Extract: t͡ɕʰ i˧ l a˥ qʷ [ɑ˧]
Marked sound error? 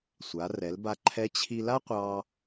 no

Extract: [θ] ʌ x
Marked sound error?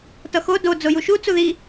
yes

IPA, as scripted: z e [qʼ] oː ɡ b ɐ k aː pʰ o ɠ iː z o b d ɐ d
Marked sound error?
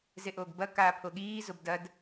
yes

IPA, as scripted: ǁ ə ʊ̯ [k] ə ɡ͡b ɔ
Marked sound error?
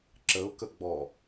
no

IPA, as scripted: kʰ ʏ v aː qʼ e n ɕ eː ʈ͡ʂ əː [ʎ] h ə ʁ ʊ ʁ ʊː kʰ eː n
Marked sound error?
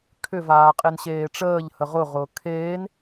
no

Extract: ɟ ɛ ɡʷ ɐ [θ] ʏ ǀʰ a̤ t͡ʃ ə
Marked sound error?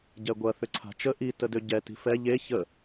no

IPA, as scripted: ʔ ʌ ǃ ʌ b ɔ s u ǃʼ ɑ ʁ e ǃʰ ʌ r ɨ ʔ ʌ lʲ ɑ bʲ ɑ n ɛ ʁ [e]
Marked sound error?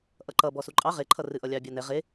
no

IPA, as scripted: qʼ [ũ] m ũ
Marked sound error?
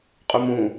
yes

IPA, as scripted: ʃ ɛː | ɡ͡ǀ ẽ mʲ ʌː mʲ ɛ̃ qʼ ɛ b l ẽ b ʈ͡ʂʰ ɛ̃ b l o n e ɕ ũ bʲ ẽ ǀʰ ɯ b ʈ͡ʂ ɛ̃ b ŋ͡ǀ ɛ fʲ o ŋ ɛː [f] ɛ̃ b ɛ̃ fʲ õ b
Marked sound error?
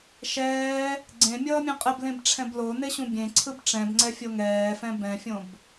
no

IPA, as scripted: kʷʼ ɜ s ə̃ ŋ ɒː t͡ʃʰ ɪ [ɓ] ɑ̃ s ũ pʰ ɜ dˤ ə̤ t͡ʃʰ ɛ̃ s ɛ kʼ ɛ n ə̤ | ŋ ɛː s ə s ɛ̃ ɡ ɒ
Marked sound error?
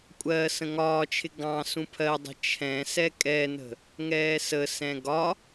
yes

